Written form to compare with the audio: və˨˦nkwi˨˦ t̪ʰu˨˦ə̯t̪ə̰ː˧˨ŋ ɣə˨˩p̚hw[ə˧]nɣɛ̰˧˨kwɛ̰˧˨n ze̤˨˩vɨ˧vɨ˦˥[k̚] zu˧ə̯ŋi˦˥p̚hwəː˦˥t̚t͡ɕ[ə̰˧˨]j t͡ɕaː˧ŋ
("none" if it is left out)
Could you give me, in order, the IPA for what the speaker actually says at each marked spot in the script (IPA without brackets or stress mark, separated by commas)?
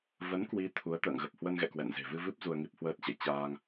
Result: ə˧, p̚, ə̰˧˨